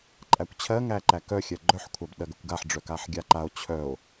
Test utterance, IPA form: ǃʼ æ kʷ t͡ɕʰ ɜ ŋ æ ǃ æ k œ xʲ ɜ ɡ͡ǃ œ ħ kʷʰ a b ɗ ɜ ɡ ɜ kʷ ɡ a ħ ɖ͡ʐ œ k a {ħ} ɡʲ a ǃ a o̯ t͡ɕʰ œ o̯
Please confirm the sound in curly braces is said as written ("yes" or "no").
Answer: yes